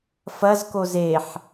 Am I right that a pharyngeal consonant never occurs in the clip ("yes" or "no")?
no